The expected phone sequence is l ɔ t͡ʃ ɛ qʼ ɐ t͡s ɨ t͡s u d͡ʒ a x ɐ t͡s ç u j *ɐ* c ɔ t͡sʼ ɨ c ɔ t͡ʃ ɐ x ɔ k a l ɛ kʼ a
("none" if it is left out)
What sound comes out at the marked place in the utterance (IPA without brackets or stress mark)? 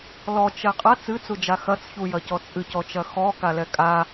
ɐ